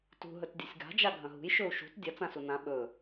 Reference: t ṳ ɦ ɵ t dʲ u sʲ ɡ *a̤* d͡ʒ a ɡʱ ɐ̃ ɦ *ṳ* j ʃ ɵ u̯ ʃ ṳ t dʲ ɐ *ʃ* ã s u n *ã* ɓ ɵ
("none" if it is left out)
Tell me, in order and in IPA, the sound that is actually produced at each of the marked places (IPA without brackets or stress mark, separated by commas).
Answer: a̤, ṳ, t͡s, ã